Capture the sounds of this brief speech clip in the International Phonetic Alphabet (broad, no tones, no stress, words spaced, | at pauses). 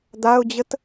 d̪aʊ̯d͡ʑət